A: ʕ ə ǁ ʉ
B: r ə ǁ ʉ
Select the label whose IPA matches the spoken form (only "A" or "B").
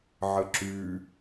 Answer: A